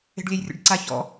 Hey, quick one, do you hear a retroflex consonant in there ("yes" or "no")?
yes